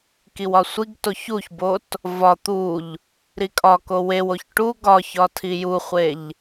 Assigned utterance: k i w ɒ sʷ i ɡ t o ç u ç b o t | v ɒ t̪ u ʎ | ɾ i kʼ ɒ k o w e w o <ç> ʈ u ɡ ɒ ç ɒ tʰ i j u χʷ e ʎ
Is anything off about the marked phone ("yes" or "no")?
no